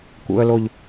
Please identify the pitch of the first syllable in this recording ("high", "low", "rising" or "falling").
low